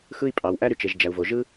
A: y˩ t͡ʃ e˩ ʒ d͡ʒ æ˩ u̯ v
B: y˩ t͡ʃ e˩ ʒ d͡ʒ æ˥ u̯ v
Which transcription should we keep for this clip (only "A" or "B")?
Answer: A